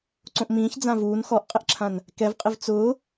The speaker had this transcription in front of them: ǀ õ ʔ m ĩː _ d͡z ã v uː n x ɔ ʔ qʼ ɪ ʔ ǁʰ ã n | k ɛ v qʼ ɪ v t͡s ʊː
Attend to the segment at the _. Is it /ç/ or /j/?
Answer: ç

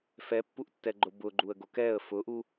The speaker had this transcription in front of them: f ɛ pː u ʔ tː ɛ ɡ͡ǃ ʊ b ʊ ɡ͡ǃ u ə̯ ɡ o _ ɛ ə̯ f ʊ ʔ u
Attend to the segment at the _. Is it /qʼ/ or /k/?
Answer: k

